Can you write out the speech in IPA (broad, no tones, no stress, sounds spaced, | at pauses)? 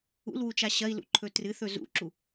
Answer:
ṵ l w u t͡ʃ a ɕ ɐ i̯ l ṵ ǃʰ ɵ t r ɨ θ ɵ z ṵ ǁ u